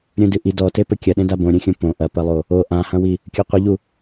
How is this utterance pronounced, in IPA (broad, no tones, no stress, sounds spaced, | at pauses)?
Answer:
ɾʲ ũ d ɨ ʔ i d ɔ t e p ɘ kʲ ɐ ɗ ẽ d a b õ ɾʲ ũ xʲ ũ p õ ʔ ɐ p ɐ lˠ o | o ʔ ã h ɐ̃ w i | kʲ o qʷ ɨ ʎ u